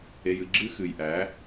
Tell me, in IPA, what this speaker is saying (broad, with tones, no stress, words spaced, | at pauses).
e˧jɨ˧ ɡ͡ǁɨ˦xɨ˨jʔæ˨˦